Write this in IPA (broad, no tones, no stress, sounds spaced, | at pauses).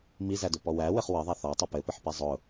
m i z æ d ʊ p ɔ w æ w ɘ χ w ə ðˤ æ θ ɔ tˤ ɘ p ɘ p ɘ ħ p i zˤ ʊ